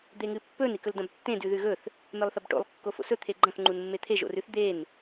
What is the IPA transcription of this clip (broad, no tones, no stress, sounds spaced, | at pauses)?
d̪ e ŋ ɨ pː ɵ n i k ɵ l d ɐ̃ b tː ẽ d ʉ ð ʉ ɣ ɵ θ | m e lˠ θ ɐ b ʈ o̰ lˠ kː o f o̰ s ɵ t̪ʰ e ɡ͡ǃ ɐ̃ θ ŋ͡ǃ u n mː e t̪ʰ e ʒ o̰ r ʉ θ d̪ e n